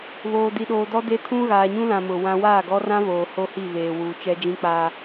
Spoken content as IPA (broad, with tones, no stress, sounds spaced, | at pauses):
β oː˨ d i˨ ɗ oː˨ d ɔ˦ d e˦ tʰ ũ˦ ɣ aː˨ ɲ ũ˦ l ã˨ m ʊ˨ w ã˦ w aː˦˨ ɡ ɔ˦ r ã˦ β oː˨ h o˦ h i˦˨ β eː˨ w uː˨ t͡ʃ ɛ˦ d͡ʒ ĩ˦ k͡p aː˦